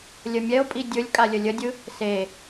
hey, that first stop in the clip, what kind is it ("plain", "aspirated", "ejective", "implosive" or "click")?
ejective